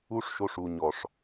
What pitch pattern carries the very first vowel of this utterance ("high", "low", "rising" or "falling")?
high